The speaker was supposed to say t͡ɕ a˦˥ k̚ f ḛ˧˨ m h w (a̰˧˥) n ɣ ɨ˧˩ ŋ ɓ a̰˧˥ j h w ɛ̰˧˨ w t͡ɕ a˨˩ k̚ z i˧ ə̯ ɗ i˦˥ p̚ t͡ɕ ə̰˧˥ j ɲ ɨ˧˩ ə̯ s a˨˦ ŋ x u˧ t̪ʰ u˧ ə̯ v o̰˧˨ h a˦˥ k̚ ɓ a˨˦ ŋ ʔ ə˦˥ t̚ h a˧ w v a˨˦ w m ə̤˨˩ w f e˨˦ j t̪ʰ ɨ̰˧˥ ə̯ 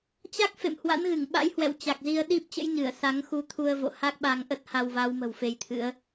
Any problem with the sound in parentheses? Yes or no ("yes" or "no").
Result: no